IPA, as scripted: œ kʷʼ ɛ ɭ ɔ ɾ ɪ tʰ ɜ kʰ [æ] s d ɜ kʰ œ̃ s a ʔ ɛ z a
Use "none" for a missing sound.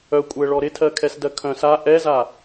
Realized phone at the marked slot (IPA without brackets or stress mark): ɛ